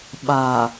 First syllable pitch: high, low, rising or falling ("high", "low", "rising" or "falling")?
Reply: low